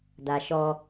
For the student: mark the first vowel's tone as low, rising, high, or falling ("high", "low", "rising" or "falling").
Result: low